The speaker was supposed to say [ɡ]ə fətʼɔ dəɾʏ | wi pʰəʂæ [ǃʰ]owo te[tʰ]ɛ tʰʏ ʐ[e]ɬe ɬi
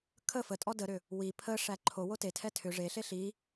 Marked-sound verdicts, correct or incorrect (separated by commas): incorrect, correct, correct, correct